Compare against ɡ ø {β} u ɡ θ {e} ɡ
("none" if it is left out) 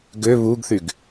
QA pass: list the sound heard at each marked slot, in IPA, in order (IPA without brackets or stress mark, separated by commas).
β, y